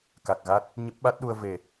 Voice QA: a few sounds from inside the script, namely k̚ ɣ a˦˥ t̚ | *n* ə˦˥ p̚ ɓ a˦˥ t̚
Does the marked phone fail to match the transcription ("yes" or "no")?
yes